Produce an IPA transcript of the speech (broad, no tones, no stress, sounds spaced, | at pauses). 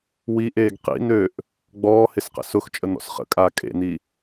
w i ʔ eː ɡ q ḭ n̪ ø ʔ | ɡ͡b ɔː h ɪ s q ə̰ s ʊ x t͡ʃʼ ə n̪ ɔ̰ s χ ə̰ kʼ aː kʼ ḛ n̪ i